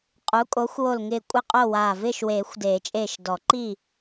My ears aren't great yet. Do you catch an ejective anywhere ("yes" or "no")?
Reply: yes